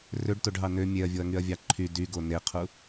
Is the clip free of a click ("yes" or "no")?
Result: no